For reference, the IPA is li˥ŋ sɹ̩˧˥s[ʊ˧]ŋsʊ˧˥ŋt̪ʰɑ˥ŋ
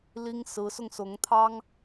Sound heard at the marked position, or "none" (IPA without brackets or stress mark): ʊ˧